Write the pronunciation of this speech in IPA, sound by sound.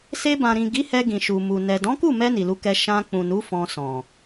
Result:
s e˧ b ã˨ ɾ ĩ˨ ɡ i˨˦ h ɛ˧ ɡ ĩ˨ ʃ u˨ m u˨ n ɛ˨ d ɔ̃˨˦ k u˦˨ m ɛ˧ n i˨ l u˧ k ɛ˧ ʃ ã˧ k͡p ũ˨ n u˨˦ f ɔ̃˧ s ɔ̃˨

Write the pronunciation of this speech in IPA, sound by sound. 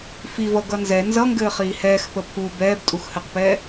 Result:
f i v ʌ ɡ ʌ n z ɛ n z ʌ ŋ ɡ ɘː χ iː h ɛː x p ə pʰ u b ɛː b tʼ u x h ɘ q p ɛː

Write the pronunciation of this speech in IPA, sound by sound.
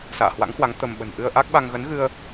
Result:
s a̰ː˧˨ h w a̰˧˥ ŋ h w a˨˦ ŋ t̪ ə˧ m ɓ ə̤˨˩ n ʔ ɨ˧ ə̯ ʔ a˦˥ k̚ ɓ a˧ ŋ ɣ ə˨˦ n ɣ ɨ˧ ə̯

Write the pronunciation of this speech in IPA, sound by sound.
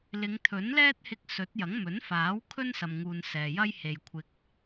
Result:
l ɪ˨˧ ŋ t̪ʰ ɵ˨˥ n l ɛː˥ t̚ h ɪ˧ k̚ s ɵ˨˥ t̚ j ɐ˨˥ ŋ m ɵ˨˥ n f aː˨˥ w kʰ ɵ˥ n s ɐ˨ m ŋ uː˨ n s ɛː˨ j ɐ˥ j h e˨ j kʷʰ ɪ˨ k̚

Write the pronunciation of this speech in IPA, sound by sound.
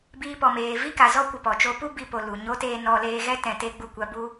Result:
b iː˧ p ɔ˨ m eː˨ v i˦ k a˨ z ɔ˦ kʷ ə˧ p ɔ˨ t͡ʃ o˦ p u˦ b i˦ p o˧ l u˨ ɲ o˦ t eː˦ n ɔ˧ l eː˧ ɣ ɛ˦ t ɛ̃˧ t e˦ ɡ͡b u˦˨ kʷ a˦ b u˦

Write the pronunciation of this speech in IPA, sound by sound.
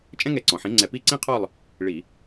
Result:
t͡ʃʼ ɛ̃˥ ŋ ɛ˨˥ ǀ ɔ̃˩ ħ ĩ˨˥ ŋ͡ǀ ɛ˧˩˧ p i˥˨ ǀ ĩ˥ qʰ ɔ˥˨ lˠ | ɭ i˧˩˧

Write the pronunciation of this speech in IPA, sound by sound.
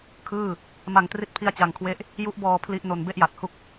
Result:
kʰ ɯː˥˩ | m a˧ ŋ t r i˦˥ t̚ pʰ i˦˥ a̯ t͡ɕ a˧ ŋ kʰ w e˥˩ ʔ | j u˦˥ ʔ b ɔː˧ pʰ l i˥˩ ʔ n o˧ n b e˥˩ ʔ j a˨˩ t̚ h u˥˩ k̚

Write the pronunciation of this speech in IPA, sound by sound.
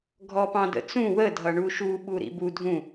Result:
ɡʱ ɔ p ɑ̃ d ə̰ t͡s ũ w ə dʱ ʌ ɳ u ʃ u ɓ u ɾ ḭ b u dʱ ũ

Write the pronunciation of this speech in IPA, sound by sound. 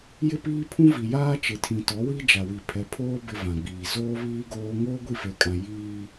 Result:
j ɪ˦ p iː˦ pʰ ũ˦ v i˨ j aː˦ t͡ʃ ɪ˨ tʰ ĩ˨ t ɔ˨˦ w i˦ d͡ʒ a˨ w i˨ pʰ ɛ˨ pʰ oː˦ b ɪ˦ v ã˨ ɡ͡b iː˨ z oː˦ β iː˦ ɡ oː˦ ŋ oː˦ ɡʷ i˦˨ f e˨ kʼ ã˨ j iː˦

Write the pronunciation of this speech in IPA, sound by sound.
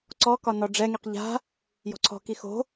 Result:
ǀ ɔ k ɒ n ɔ ɖ͡ʐ ɛ ŋ i q ʎ a̤ | j ɔ̤ ǀʰ ɔ̤ k i x o̤

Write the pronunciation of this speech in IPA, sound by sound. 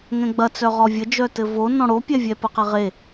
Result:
ŋ ɛ̃ ɡ͡b ɐ t͡s œ ʁ ɔ vʲ ə d͡ʒ œ t ɘ v o n ɔ̃ ɽ o pʲ ɛ vʲ ɛ p ə q ɛ ʁ e

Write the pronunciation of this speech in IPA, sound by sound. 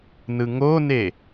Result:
n ɯ ŋ o n e

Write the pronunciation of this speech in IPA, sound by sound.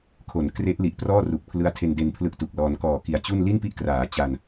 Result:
kʰ o˩˦ n k r e˦˥ ʔ l i˨˩ ʔ p r ɔː˥˩ r u˨˩ k̚ pʰ l ɯ˦˥ a̯ tʰ e˧ n d e˧ n pʰ l ɯ˥˩ k̚ t u˨˩ k̚ l ɔː˧ n k ɔː˨˩ k i˩˦ a̯ t͡ɕ u˥˩ n l i˥˩ n p i˦˥ ʔ k r aː˩˦ t͡ɕ a˧ n

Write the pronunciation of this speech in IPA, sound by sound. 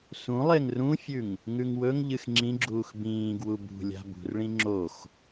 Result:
s ũ lˠ e ŋ r ũ fʲ ʉ ŋ | ŋ ʉ ŋ w ɵ ŋ ʎ ɨ x ŋ͡ǁ ĩ ɡ͡ǁ uː x b ĩː ɡ w u b ṳ lʲ a̤ b ṳ r ɭ ĩ ŋ͡ǁ o x

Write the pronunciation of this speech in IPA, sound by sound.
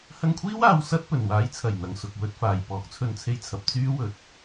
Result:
h ɐ˧ ŋ kʷʰ iː˥ w aː˧ w s ɐ˥ t̚ p ɵ˨˩ n w aː˨˥ j t͡sʰ ɐ˨˩ j n̪ ɐ˨ ŋ s ʊ˨ k̚ w ɵ˧ t̚ f aː˨˩ j p ɔː˨˥ k̚ t͡sʰ ɵ˧ n t͡sʰ e˧ j t͡sʰ ɐ˨ p̚ t͡s yː˥ w ɵ˨ t̚

